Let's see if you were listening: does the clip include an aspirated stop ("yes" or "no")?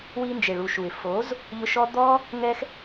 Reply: no